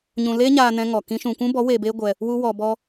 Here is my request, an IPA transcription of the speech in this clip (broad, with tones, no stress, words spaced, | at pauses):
ɲũ˧leː˦ɲaː˧nɛ̃˧ ŋɔ˨ kĩ˦ʃũ˧ kʷũ˦bɔ˨˦ weː˧beː˦ɡʷɛ˧ | wu˦wɔ˧bɔ˦